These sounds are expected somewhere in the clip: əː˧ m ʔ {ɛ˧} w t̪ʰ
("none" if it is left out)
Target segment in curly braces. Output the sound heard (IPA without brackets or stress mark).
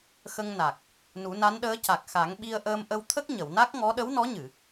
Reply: ə˧